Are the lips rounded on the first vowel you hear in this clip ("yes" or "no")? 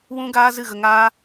yes